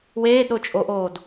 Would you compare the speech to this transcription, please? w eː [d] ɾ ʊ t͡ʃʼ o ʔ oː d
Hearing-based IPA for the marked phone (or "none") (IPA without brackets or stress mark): d